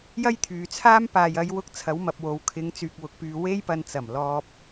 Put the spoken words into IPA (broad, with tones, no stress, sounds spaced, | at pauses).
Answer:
j ɐ˥ j t̪ʰ yː˨ t͡sʰ aː˥ m p aː˨ j ɐ˨˧ j w ʊ˧ k̚ t͡sʰ ɐ˨˧ w m ɐ˨ p̚ w o˨ w kʰ ɪ˨˧ ŋ t͡s yː˨ k̚ w ʊ˨ k̚ p yː˨ w e˥ j p ɐ˧ n t͡s ɐ˨˩ m l ɔː˧ p̚